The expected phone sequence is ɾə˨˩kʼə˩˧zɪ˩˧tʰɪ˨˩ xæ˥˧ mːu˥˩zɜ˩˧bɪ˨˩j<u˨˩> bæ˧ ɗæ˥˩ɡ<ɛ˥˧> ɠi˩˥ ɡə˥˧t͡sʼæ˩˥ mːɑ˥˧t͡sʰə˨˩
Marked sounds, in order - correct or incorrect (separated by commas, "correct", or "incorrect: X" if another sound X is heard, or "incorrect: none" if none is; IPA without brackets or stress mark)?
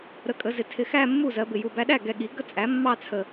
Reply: correct, incorrect: ɛ˨˩